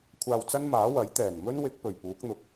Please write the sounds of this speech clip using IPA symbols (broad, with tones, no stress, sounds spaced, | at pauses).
kʷʰ aː˧ w t͡s ɐ˥ n m aː˨˥ w ɐ˨˥ j t̪ ɛː˨˩ n m ɵ˥ n w ɪ˨˥ k̚ p ɵ˨˩ ɥ p uː˨˥ k̚ n̪ ʊ˨˥ k̚